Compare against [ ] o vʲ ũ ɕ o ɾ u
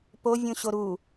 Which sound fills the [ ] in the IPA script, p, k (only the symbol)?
p